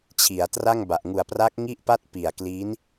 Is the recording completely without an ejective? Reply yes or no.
yes